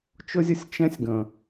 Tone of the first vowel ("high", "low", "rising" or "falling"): high